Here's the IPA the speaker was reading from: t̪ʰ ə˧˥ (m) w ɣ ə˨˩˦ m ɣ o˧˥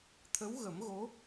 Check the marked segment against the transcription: incorrect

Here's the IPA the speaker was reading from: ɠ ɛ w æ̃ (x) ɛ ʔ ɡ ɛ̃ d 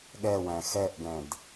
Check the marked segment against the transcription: correct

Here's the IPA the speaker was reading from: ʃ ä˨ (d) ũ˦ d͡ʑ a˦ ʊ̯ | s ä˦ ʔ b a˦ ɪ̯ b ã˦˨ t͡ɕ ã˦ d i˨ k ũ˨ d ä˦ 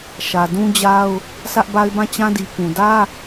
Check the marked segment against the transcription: correct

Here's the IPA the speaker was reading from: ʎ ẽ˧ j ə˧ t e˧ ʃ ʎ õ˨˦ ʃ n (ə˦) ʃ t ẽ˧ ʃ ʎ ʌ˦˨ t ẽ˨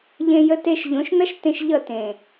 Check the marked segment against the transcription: incorrect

